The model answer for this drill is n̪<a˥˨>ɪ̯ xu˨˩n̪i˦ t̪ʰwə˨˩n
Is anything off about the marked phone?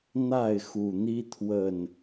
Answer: no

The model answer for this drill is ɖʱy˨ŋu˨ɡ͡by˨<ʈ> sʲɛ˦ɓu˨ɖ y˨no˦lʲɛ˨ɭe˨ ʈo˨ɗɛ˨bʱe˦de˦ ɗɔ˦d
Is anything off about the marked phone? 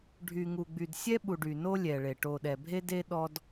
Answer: yes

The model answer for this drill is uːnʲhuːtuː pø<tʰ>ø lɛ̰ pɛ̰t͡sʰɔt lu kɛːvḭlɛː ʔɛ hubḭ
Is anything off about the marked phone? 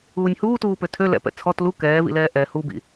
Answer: no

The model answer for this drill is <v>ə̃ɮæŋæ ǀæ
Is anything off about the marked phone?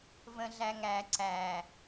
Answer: no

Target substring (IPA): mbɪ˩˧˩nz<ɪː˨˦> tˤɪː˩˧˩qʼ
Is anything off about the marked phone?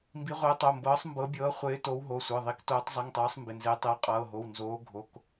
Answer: no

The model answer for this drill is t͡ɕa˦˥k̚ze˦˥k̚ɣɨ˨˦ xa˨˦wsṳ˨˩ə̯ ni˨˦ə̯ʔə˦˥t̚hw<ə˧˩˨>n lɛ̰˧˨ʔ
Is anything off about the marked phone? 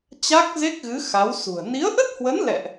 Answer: yes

